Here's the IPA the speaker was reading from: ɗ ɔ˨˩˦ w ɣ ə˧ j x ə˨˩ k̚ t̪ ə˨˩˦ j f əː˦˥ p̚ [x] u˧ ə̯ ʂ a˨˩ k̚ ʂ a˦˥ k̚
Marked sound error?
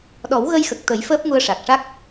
yes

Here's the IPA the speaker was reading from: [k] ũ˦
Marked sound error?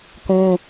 no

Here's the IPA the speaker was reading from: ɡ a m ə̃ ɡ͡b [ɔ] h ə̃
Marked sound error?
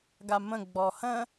no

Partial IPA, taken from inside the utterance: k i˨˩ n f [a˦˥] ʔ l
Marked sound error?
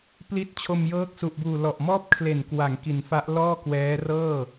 no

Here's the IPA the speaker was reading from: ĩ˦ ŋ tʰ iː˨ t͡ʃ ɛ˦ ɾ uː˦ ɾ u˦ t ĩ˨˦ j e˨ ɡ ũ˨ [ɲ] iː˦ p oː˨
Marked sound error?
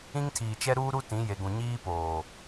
no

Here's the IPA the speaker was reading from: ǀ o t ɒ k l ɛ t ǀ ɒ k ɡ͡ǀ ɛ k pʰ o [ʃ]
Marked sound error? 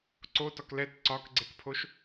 no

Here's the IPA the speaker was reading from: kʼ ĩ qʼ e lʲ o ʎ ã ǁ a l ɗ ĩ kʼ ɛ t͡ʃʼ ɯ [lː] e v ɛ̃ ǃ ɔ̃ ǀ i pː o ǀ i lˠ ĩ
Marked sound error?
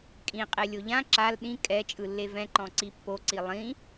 no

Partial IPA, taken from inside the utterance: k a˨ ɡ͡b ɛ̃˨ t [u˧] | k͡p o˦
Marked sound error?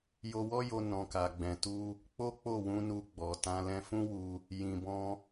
no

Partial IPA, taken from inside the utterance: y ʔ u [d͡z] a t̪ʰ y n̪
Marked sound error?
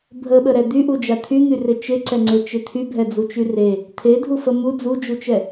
yes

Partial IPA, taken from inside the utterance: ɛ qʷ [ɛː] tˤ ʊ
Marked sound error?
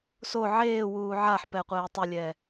no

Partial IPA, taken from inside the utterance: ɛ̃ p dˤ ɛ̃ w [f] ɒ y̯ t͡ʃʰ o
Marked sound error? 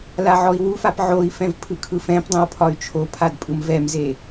yes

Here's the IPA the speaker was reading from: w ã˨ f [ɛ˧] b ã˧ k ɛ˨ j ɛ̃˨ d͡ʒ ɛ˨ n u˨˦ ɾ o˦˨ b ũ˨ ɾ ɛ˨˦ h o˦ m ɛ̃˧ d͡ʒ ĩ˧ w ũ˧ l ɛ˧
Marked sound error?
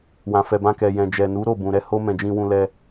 yes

